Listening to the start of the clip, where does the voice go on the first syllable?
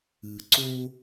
low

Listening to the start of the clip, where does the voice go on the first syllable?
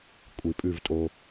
low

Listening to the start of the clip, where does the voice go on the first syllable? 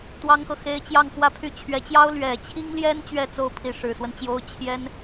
high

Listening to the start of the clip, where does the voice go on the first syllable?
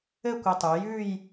falling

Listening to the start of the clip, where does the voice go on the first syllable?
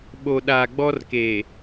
low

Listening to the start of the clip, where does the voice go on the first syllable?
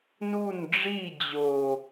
falling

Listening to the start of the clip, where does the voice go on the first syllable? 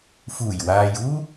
low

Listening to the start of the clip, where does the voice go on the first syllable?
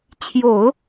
low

